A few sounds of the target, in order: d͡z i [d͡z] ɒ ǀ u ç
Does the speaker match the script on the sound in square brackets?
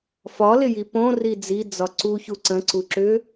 yes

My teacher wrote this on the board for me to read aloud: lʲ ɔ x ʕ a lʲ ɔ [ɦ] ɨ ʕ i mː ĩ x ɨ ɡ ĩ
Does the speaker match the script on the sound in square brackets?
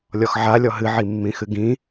yes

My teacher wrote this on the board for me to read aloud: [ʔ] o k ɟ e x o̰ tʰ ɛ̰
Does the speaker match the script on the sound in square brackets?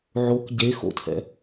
no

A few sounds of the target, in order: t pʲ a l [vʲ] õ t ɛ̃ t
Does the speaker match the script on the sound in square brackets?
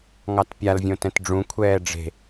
yes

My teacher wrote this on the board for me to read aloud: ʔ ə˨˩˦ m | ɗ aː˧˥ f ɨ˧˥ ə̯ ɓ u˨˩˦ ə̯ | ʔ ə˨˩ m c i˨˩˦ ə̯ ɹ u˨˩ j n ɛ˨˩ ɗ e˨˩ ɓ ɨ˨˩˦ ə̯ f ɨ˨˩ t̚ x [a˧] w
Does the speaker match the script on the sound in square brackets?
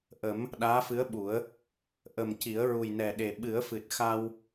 yes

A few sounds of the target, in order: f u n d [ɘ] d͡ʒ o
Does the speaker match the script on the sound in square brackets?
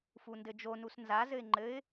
yes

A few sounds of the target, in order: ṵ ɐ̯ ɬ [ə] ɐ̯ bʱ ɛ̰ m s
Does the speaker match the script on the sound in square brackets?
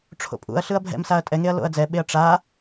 no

